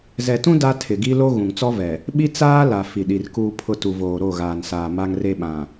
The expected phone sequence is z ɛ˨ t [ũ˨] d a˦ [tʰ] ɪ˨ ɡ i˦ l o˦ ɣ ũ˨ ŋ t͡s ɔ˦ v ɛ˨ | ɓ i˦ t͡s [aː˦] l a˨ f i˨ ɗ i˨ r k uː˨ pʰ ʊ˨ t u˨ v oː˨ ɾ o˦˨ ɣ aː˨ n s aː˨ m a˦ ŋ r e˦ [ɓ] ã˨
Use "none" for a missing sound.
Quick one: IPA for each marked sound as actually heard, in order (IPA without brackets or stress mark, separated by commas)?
ũ˦, tʰ, aː˦, ɓ